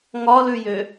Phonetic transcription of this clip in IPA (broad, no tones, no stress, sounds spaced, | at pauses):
ŋ ɒ l ʉ j ø